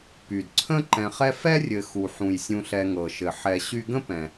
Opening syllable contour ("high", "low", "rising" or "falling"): low